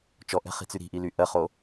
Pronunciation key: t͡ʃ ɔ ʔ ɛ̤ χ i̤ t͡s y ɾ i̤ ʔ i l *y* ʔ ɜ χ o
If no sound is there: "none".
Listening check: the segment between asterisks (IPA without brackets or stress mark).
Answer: y